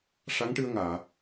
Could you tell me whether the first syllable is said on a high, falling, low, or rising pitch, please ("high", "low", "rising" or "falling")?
rising